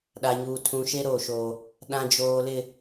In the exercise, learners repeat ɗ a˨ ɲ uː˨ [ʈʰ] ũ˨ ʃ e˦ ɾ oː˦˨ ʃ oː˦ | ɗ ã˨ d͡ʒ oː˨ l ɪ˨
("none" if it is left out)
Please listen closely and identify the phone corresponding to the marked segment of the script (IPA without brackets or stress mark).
tʰ